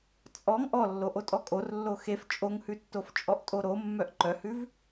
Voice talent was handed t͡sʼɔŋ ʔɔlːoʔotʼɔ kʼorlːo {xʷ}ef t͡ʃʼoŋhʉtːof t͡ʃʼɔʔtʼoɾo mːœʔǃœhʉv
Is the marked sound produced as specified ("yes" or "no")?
no